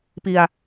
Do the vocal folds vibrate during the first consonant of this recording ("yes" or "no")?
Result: no